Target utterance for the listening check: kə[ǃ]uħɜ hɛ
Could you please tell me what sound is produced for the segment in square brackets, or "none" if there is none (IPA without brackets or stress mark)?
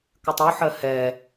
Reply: tˤ